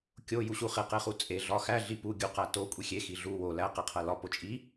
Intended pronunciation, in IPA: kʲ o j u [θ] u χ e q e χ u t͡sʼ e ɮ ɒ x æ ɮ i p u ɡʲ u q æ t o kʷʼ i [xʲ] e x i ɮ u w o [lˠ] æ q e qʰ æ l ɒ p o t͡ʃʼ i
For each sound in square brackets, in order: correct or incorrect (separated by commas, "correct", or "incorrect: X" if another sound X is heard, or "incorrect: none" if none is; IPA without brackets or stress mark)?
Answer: incorrect: ɕ, correct, incorrect: l